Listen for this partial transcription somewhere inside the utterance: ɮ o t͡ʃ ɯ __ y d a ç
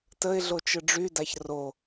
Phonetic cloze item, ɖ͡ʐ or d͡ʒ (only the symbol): ɖ͡ʐ